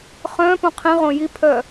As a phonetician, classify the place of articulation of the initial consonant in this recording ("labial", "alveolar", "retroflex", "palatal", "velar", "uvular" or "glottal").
uvular